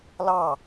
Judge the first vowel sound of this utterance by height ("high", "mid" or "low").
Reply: low